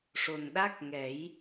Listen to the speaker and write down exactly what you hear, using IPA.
ʂ o˨˩ n ɗ a˦˥ k̚ ŋ ɛ˨˩˦ j

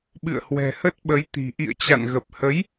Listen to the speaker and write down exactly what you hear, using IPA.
ɓ ɨ̰˧˨ ə̯ h w ɛ̤˨˩ h ə˦˥ t̚ ɓ ə˨˦ j t̪ i̤˨˩ ʔ ḭ˧˨ ə̯ t͡ɕ a̰˧˨ n ɣ ə˨˩ p̚ h ə˨˦ j

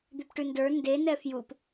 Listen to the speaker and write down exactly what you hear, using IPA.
d̪ ʉ p ʈ ʉ n d ə˞ n d e n ɛ f j u p

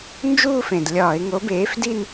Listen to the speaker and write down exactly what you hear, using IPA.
n d͡ʒ uː˥˧ f ẽ˨˩ d lʲ ɒː˧˩˧ ɪ̯ ŋ o˨˥ b eː˨˥ f d i˥˧ n

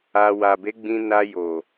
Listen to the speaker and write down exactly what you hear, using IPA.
a˧ w a˨ b e˨˦ ɡ͡b ĩ˧ n a˧ j o˨

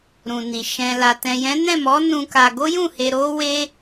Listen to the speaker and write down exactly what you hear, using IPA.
ɾ ũ˨ n i˨ ʃ ɛ̃˨ l a˨ t ɛ̃˨ j ɛ̃˨˦ n ɛ̃˦˨ m ɔ˨˦ n ũ˧ k a˧ ɡ o˦ j ũ˦˨ h e˧ ɾ o˦ w e˦

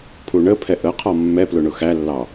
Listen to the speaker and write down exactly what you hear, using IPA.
pʰ u ɳ ə pʰ ɛ ʔ ə qʰ ɒ mː ɛ p l ʊ ɳ ʊ x æ lː ɑ

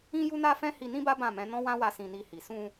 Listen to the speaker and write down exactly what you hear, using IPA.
ĩ˦ j u˦ n a˦ f ɛ̃˦ h i˧ n ĩ˦ b a˦ b ã˦˨ m ɛ̃˨˦ n ɔ̃˦ w ã˦ w a˧ s ĩ˧ n i˧ h i˨ s ũ˧

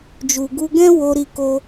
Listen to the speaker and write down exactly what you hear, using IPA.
d͡ʒ u˨ ɡ u˧ ɡ ɛ̃˦ w o˧ ɾ i˧ k o˧

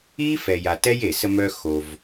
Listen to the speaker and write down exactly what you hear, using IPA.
i˥ f ɛ˨ j a˨ t ɛ˥ j e˩ s ə˦ m œ˦ x o˨ v

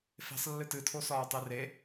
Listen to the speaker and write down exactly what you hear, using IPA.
f e̤ sˤ lː ɨ t ɨ tʰ o s ɒː tˤ e r e

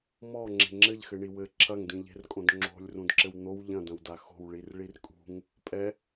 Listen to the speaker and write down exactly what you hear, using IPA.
m ɔ ŋ͡ǁ e̤ ŋ͡ǁ ɘ ʎ x ɘ ɳ i w ɘ ǁʰ ɐ ŋ d ĩ ʎ e̤ r kʼ õ d ŋ͡ǁ o̤ lʲ r ũ d ǁ ɘ w n̪ o w ʎ ɐ̃ d ɐ̃ w d a x o̤ w ɭ i r ɭ i r kʼ ṳ ŋ | pʼ ɛ

